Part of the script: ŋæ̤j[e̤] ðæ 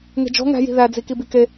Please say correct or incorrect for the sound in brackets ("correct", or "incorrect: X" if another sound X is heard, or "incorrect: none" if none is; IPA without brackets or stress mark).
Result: incorrect: i̤